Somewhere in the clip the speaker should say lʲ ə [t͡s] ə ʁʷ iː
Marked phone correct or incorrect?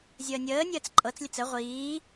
correct